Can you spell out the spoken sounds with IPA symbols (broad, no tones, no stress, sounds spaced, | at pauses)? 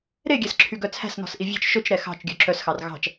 ɾ e ɡʲ æ s ǁʰ y ɡ œ t͡sʰ æ̤ s n ɔ̤ s ʔ i vʲ ɛ̤ t͡ʃ ʃ ɵ t͡ʃ ɾ ɛ x ɑ̤ t͡ʃ ɡʲ œ ǁ œ s x ɑ r ɣ ɑ̤ t͡ʃ